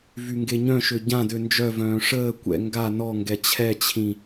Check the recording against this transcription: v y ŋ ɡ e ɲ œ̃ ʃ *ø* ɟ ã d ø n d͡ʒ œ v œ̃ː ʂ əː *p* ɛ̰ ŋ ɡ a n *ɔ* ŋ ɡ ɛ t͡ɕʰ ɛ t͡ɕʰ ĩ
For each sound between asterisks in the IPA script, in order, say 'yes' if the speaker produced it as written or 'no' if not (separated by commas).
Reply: yes, no, yes